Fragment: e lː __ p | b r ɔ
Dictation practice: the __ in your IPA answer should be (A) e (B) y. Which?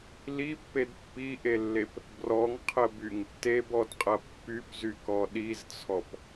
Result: A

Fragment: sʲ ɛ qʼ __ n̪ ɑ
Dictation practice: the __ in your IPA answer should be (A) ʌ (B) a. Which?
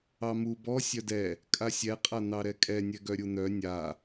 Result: B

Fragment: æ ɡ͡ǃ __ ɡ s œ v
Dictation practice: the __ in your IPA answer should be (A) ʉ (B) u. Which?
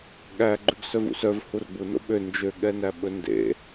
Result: A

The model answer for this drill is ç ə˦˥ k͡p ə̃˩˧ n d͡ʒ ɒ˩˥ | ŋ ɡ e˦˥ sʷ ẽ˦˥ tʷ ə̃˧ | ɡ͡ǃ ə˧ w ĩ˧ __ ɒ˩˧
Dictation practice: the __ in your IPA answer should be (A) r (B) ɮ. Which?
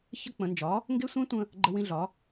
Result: B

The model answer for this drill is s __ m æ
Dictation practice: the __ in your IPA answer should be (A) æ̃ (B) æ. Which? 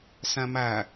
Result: A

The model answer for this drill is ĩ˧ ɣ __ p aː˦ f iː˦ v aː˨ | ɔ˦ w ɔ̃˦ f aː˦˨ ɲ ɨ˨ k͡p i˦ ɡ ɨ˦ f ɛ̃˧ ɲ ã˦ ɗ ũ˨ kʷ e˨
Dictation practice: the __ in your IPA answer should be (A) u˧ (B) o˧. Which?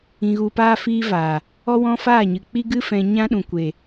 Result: A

